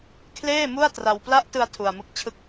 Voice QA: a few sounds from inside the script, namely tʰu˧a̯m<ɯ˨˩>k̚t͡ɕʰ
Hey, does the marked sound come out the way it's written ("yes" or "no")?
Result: no